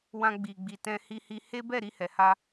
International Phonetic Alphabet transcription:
wã˧ɡ͡bi˨ɡ͡bi˨ tɛ̃˧hi˧hi˧ he˦bɛ˦˨ ɾi˧hɛ˨ha˧

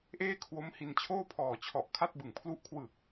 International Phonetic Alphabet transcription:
ʔeː˥˩kʰwo˦˥mhi˧n t͡ɕʰoː˥˩pʰɔː˨˩t͡ɕʰɔ˨˩ʔ kʰa˥˩t̚bɯ˨˩ŋpʰlu˥˩ʔ kʰwɯ˨˩k̚

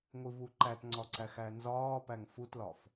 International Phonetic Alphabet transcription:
ŋʷivuǃætŋ͡ǀɒ ǀæxænzɒːpæŋ futlɒf

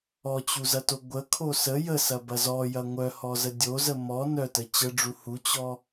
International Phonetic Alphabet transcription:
ɔt͡ɕuzɐto ɡʷəkʰo sə jəsɐbɐ zɔjɐ ŋʷœhɔzə dʲozə mɔ nœtə t͡ɕəɖ͡ʐu hut͡ɕɔ

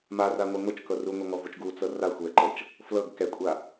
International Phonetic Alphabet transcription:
maraŋʷɛ ŋot͡ʃkɤ ruŋʷaŋɔvot͡ʃ ɡut͡sɤ ra xʷɛǃɤt͡ʃ | flɤɡ kɛkʷʼa

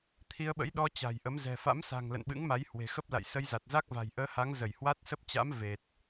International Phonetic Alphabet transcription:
t̪ʰi˧ə̯ɓə̰˧˥jɗɔ˧ t͡ɕa̤˨˩jʔə˨˦m zɛ̤˨˩fa̰˧˥msa̤˨˩ŋ lə̰˧˨nɓɨ̰˧˥ŋma˨˦j hwe̤˨˩xə˦˥p̚ la̰˧˨j sə˧jza˨˩t̚ za˦˥k̚va̤˨˩jʔəː˧ha˨˦ŋ zə˧˩jhwa˦˥t̚sə˦˥p̚ t͡ɕa̰˧˥m ve˨˩t̚

